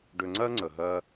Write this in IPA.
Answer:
ɖ ø˧ ŋ͡ǀ ɜ˥ ŋ͡ǀ ə˩ ɦ ɜ˧

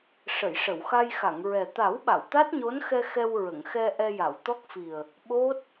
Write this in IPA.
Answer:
ʂ ə˨˩˨ j ʂ ə˨˩˨ w x a˧ j x a˨˩˨ ŋ ɹ ɛ˨˩ t̪ a˨˩˦ w ɓ a˨˩˨ w t̪ a˦˥ t̚ ɲ o˧˥ n x ɛ˧ x ɛ˧ w ɹ ə˨˩˨ ŋ x ɛ˧ ʔ ɛ˧ j a˨˩˨ w t̪ ɔ˦˥ k̚ f i˨˩ ə̯ | ɓ o˦˥ t̚

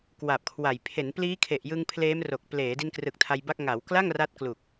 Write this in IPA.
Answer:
k w a˨˩ p̚ kʰ w a˨˩ j pʰ e˩˦ n p l iː˦˥ kʰ e˨˩ ʔ j ɯ˧ ŋ pʰ l eː˦˥ m r o˨˩ k̚ p l eː˩˦ d i˧ n k r ɯ˨˩ k̚ tʰ a˧ j b a˥˩ k̚ ŋ a˩˦ w k l a˥˩ ŋ r a˥˩ t̚ k l u˨˩ k̚

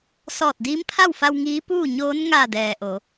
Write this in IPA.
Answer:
s ɔː˧˩ t̚ d iː˧˥ m pʰ a˥˨ w f a˧ w ŋ iː˧˥ p uː˥˨ ɲ oː˧˥ n ŋ a˧˩ d ɛː˩ ʔ o˩˧

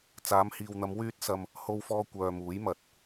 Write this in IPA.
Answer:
t͡s aː˨˧ m h iː˨ w n̪ ɐ˨˧ m w yː˥ t̚ s ɐ˧ m | h o˧ w f ɔː˧ kʷ œː˨ m uː˨˥ j m ɐ˨ t̚

